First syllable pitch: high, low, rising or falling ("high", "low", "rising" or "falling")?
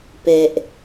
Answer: low